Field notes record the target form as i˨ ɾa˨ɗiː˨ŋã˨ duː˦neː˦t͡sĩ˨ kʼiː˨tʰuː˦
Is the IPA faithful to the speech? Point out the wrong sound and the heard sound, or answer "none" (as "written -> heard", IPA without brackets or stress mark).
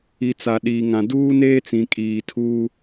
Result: ɾ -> t͡s